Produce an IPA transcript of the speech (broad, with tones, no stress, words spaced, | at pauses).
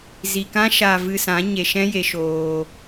zi˨kã˦ ʃa˨vɨ˨ sã˨˦ɲe˨ʃɛ̃˦ je˧ʃoː˧